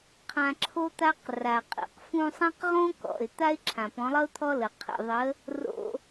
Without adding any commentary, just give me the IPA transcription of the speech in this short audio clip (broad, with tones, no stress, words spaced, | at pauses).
qʰã˧ ǁʰo˦t̪a˦q ra˨qʼḭ˨q fũ˧sˤã˦qʁõ˦ kɔ̰˨ɪ̯ t̪a˦ɪ̯ǁʰã˨pɔ̃˨˦lˠʌ˦ʊ̯ t̪ʰɔ˦lə˨ qʰḭ˨ðˤə˨˦ | ro̰˧